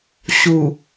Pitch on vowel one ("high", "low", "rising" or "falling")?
low